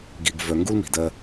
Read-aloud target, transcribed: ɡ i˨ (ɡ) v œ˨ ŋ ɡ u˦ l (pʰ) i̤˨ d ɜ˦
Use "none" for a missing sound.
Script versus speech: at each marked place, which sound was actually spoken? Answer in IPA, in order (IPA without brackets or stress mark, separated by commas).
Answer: ɡ, m